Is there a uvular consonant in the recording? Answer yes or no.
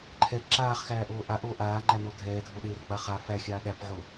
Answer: yes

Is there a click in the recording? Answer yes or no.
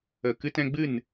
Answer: no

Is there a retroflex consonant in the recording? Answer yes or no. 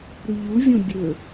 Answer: no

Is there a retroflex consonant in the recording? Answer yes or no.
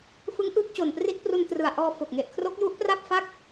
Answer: no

